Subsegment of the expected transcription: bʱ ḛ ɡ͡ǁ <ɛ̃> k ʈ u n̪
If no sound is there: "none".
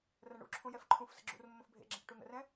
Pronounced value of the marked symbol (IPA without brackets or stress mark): ɛ̃